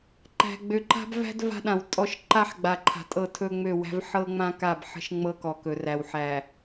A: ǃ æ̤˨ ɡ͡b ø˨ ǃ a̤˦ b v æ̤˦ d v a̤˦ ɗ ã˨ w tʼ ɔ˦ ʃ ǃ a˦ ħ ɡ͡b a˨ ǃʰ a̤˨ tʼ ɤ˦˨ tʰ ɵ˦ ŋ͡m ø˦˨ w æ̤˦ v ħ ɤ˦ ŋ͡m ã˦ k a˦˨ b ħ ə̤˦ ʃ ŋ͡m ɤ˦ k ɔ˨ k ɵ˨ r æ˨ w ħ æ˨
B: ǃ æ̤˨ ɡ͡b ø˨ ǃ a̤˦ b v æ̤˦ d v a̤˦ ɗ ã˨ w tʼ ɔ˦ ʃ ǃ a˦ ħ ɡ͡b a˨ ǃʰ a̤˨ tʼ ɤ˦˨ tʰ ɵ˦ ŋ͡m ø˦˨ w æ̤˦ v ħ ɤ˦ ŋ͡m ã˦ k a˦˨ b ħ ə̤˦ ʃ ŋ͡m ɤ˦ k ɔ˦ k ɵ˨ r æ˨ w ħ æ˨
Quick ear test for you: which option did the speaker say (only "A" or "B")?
A